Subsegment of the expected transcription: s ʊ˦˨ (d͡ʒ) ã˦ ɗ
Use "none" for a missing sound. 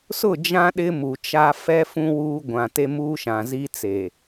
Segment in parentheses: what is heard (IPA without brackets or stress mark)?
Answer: d͡ʒ